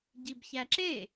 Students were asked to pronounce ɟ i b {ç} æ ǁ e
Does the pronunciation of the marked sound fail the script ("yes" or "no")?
no